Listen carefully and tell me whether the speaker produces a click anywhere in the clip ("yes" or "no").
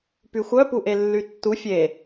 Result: no